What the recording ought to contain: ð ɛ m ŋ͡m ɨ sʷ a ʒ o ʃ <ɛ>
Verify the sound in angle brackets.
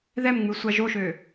incorrect: ø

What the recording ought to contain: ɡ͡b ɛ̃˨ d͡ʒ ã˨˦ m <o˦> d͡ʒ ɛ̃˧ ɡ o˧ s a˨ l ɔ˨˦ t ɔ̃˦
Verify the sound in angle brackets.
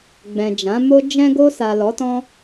correct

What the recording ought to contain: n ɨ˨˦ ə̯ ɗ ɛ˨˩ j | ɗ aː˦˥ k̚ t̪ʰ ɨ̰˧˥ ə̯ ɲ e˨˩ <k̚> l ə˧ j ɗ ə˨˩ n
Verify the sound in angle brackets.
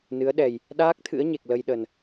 correct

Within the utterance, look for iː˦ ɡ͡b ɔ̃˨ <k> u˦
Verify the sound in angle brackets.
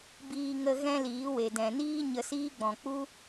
incorrect: k͡p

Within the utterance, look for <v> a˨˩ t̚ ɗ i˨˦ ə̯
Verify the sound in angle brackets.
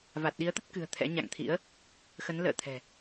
correct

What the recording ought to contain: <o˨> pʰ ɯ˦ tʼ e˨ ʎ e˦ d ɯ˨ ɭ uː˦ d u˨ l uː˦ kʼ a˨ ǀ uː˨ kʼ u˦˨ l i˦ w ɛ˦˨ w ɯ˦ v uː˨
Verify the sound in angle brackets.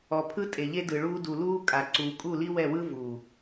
incorrect: ɔ˨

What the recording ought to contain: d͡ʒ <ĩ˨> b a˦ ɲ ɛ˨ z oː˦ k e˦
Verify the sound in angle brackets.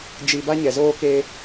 incorrect: i˨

